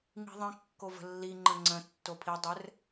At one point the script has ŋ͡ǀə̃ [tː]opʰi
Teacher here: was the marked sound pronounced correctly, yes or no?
yes